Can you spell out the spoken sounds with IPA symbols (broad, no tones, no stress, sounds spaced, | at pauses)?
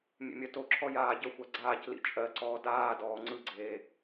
mʲ ḛ mʲ ɜ t o ǁʰ ɔ j aː ɟ ə xʷ a ɡ͡ǀ aː c l ḭ t͡ʃʼ ɜ ǀ ɔː d aː d ɔː ŋ͡ǀ ɯ ɡ͡ǀ eː